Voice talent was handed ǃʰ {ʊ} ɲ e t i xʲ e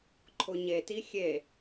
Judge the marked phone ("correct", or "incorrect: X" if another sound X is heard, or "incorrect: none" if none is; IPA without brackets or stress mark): correct